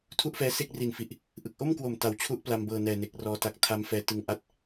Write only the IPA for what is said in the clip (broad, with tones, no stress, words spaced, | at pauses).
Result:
tʰu˥˩ʔfɛː˦˥ se˥˩k̚ri˨˩nfi˨˩ʔ | ʔɯ˨˩k̚ʔo˥˩mkwo˨˩m ta˨˩wt͡ɕʰu˥˩ʔpla˧mbɤː˨˩ nɛː˨˩ne˨˩k̚rɔː˧ ta˨˩k̚ tʰa˦˥mfɛː˧ tɯ˧ŋʔa˥˩t̚